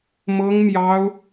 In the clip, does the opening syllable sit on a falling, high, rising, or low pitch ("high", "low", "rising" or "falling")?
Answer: high